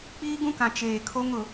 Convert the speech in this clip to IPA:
k͡piː˦ɡũ˦kã˨ t͡ʃeː˨kʰo˦ŋ ʊ˨˦

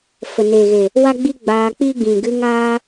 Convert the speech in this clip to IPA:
fə˨neː˨ɣe˨ | wa˦ɡ͡bi˦ ɡ͡baː˧k͡pi˦ɡĩ˨ ɡɨ˧ŋaː˧

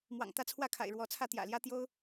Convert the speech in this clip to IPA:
mwɑ̰˨˩ŋt̪ä˥˧t͡sʰwä˥˩kʰa̰˨˩ɪ̯ ɻwɔ˧˥t͡sʰä˥˩ t̪jä̰˨˩ljä˥ t̪jo˥ʊ̯

